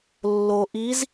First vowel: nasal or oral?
oral